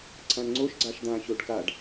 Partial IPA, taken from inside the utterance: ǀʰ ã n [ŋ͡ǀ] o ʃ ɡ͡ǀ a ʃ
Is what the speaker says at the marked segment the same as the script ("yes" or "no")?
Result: yes